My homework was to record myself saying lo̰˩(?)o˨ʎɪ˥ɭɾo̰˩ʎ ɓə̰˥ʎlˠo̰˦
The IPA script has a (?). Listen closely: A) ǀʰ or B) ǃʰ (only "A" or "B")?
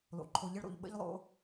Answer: B